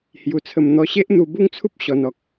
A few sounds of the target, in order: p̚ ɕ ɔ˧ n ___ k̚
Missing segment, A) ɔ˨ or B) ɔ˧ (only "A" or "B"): A